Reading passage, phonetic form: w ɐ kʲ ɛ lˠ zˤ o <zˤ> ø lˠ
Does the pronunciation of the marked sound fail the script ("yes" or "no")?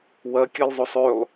yes